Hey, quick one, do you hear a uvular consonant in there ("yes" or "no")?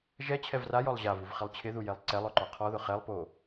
yes